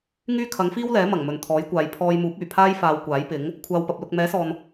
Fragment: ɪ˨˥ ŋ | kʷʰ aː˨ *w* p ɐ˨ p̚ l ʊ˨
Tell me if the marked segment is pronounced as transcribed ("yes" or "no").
yes